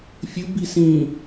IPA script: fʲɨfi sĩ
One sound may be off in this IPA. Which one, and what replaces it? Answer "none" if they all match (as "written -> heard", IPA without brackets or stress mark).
f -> b